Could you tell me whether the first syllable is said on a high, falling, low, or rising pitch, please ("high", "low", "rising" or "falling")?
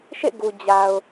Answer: falling